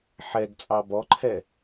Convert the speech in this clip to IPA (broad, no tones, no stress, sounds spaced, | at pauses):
ħ ɛ ɡ t͡sʼ ɑ b ɔ ǃʰ ɛ